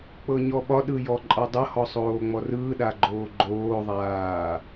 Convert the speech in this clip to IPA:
k͡p ɤ ɲ ɔ ɓ ɒ ɗ ɯ j ɔ ǃʼ ɒ dˤ ɤ h ɔ sˤ oː ŋ͡m ɔ r ɯː ɗ a ɡ͡ǃ oː ɡ͡ǃ oː ðˤ aː

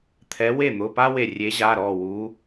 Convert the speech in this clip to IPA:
t̪ʰ ɛ˨˦ w e˥˩ n̪ ʊ˩˧˩ p a˥ w e˧˩ rʲ e˨˦ ʑ a˩˧˩ ɾ ɔ˧˩ w u˨˦

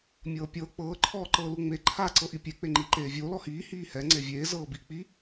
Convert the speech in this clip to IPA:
mʲ ɤː pʲ ɤː k͡p ɤː ǃʰ ɔː ǃ ɤː l u ŋ͡m e ǃʰ a ǀ ɤ ʔ i pʲ e k͡p e ŋ͡ǃ iː ǃ eː vʲ oː l ɔ h iː h iː h ɛ ŋ͡ǀ e vʲ eː z ɤː b i k͡p i

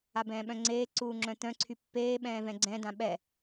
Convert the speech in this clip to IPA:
a b ɛ̃ː ɓ œ̃ ŋ͡ǀ eː ǀ uː ŋ͡ǁ œ̃ t̪ œ̃ ǀʰ y pː eː ɓ ɛ̃ː v ɛ̃ ɡ͡ǀ ɛ̃ d ã ɓ ɛ

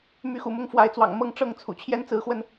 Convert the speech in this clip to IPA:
m y˨˦ x ṵ˨˩ m ʊ˥˨ ŋ f w a˨˦ ɪ̯ t͡s w ɑ̰˨˩ ŋ m ɤ˥˨ ŋ ʈ͡ʂ ɤ˥˨ ŋ t͡sʰ ṵ˨˩ t͡ɕʰ j ɛ˦ n t͡s ɹ̩˨˦ x w ə˧ n

